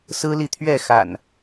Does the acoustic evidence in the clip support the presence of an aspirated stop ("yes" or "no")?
yes